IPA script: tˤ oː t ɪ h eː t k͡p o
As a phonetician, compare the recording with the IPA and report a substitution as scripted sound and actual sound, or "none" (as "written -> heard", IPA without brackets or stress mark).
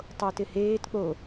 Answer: none